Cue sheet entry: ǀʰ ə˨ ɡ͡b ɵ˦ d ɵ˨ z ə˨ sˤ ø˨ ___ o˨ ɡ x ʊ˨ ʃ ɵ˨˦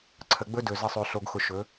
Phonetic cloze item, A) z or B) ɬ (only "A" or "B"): B